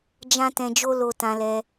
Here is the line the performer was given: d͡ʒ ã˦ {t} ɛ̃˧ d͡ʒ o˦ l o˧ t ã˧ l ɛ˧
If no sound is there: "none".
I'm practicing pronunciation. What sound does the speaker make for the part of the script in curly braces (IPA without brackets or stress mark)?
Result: t